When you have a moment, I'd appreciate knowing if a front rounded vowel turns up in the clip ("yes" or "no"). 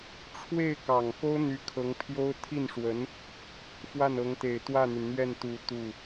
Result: yes